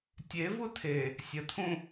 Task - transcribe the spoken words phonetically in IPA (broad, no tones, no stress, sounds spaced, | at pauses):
tʲ e v u tʰ e | sʲ ə tʰ ũ